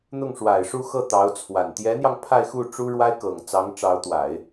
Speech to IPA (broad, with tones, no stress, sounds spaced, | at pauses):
n̪ ʊ˥˩ ŋ ʂ w a˨˩ ɪ̯ ʂ u˥˧ x ɤ˥˩ t̪ ɑ˧˥ ʊ̯ t͡sʰ w a˨˩ n t̪ j ɛ˧˥ n̪ j ɑ˧ ŋ pʰ a˥˧ ɪ̯ x u˥˩ ʈ͡ʂ u˥ ɻ w a˥ ɪ̯ k ɤ˨˩ ŋ t͡s ɑ˧˥ ŋ ʈ͡ʂ ɑ˧˥ ʊ̯ t̪ w a˨˩˦ ɪ̯